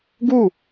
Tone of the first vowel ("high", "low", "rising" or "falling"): falling